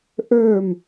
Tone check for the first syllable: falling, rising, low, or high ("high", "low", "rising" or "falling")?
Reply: falling